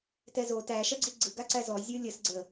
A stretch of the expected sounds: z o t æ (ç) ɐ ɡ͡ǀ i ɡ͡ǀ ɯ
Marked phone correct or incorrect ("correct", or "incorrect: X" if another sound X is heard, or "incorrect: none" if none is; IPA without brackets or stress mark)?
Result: incorrect: ʃ